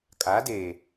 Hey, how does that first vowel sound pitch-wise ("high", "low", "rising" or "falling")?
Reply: rising